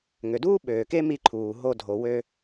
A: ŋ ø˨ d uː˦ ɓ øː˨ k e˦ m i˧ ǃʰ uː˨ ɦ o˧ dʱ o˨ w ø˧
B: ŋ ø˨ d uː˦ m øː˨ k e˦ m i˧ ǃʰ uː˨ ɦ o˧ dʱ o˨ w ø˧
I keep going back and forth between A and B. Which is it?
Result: A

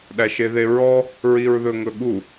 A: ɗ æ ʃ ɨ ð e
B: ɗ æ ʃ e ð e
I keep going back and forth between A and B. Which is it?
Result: B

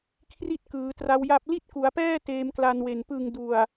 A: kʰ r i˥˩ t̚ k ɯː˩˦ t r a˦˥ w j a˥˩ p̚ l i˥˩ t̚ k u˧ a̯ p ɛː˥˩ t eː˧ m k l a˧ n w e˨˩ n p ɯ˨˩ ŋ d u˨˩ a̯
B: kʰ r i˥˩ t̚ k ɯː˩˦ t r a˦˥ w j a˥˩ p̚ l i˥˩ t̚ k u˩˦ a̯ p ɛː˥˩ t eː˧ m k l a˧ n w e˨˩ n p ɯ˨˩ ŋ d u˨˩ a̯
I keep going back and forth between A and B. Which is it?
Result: B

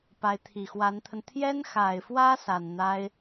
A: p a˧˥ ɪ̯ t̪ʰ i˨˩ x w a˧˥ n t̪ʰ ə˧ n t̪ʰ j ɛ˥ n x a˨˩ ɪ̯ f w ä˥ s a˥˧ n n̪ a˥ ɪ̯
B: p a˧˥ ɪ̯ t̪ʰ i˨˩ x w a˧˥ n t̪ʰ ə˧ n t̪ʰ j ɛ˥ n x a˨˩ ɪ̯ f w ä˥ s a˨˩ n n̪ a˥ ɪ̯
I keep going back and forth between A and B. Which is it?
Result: B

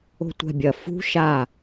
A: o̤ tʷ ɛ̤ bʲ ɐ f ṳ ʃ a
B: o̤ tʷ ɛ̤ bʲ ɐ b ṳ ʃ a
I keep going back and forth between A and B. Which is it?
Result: A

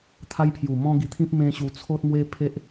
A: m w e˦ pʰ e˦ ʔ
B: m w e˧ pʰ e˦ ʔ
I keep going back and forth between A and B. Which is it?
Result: A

